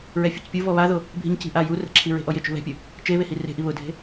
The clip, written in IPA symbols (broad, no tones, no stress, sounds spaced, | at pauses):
ɹ ɛ fʲ u c pʲ u v ɔ β a ð o | bʱ i̤ ɲ c i̤ ʔ a j u r ɛ̤ ǁʰ i ɹ e̤ ʔ ɔ j ɪ t͡ʃ ṳ β ɛ̤ pʲ ʊ | t͡ʃ e β e h i r e̤ ʔ i β ʊ dʱ e̤